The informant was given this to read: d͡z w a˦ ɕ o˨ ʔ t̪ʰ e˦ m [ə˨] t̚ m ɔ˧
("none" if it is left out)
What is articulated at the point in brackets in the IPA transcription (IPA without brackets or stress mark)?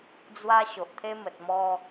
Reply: ə˨